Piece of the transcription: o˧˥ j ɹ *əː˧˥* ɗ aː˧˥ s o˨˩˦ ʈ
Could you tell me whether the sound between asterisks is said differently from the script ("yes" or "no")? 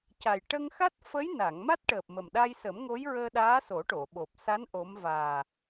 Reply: yes